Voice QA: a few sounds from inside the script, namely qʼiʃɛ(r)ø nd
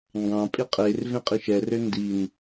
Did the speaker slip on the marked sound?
no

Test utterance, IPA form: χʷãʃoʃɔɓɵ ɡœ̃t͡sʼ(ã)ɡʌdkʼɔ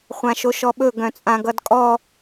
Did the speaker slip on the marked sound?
no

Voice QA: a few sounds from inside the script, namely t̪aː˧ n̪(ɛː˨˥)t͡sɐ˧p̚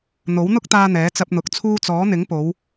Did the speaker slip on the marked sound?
no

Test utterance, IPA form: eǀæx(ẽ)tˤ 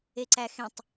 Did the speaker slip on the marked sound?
no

